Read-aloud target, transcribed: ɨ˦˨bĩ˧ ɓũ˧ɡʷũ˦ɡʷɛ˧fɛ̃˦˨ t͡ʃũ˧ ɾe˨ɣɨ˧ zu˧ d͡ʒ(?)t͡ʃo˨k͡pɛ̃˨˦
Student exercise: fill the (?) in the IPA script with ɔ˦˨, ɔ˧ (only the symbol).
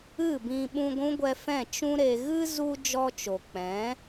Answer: ɔ˧